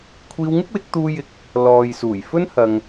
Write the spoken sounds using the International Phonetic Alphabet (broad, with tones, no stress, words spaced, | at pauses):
kʷʰiː˧wŋɪ˥k̚wɪ˨˥k̚t̪uː˧ jɪ˧k̚ | lɔː˨jsuː˨˩jfɵ˥n hɐ˧ŋ